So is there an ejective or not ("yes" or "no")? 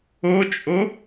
yes